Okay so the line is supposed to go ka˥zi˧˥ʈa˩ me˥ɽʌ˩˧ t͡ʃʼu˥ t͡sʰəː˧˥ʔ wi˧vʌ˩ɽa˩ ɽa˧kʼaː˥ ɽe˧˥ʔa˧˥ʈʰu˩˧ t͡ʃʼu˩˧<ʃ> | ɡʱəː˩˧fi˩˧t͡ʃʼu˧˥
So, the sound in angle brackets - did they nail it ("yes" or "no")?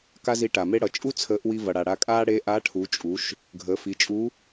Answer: yes